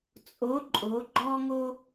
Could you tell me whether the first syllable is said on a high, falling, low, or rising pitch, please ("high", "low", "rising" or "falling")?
rising